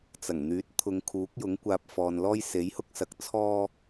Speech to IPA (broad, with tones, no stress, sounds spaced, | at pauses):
t͡s ɐ˨˩ ŋ n̪ yː˨˥ t̚ t̪ʰ ʊ˨˧ ŋ kʰ uː˨˥ k̚ j ʊ˨˥ ŋ kʷ aː˧ p̚ f ɔː˨ n l ɔː˥ j s e˨˥ j h ʊ˥ k̚ s ɐ˨˥ k̚ t͡sʰ ɔː˥